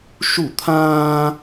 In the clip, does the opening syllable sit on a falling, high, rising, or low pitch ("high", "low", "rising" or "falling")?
falling